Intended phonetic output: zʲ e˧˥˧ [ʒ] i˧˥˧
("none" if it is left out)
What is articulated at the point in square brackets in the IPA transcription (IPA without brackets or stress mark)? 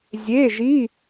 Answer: ʒ